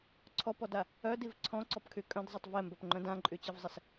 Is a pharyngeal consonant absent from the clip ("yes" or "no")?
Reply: yes